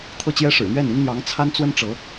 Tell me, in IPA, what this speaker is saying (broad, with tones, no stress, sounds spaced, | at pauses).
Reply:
t̪ʰ ɤ˥˩ t͡ɕ j ɛ˥ ʂ ɻ̩˨˩ n̪ ɥ ɛ˥˩ n i˥ n n̪ j ɑ˧˥ ŋ t͡sʰ a˥ n t͡s w ə˥ n ʈ͡ʂ ɤ˧˥